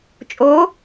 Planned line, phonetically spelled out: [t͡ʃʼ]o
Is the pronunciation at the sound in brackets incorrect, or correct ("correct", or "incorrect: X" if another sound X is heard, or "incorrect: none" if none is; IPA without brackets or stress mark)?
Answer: correct